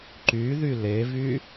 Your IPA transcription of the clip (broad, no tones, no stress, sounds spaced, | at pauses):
ǃ y ð y l e v y